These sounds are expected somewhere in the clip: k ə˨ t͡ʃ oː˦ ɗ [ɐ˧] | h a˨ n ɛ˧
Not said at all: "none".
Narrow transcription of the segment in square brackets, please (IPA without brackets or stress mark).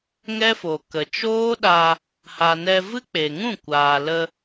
a˧